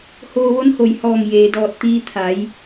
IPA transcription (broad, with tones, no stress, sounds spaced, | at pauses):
h oː˧ ʋ o˧˥ n h o˧˩ j h ɔː˧˩ ŋ j eː˩ d ɔː˧˩ t̚ t̪ iː˧ t̪ʰ a˩˧ j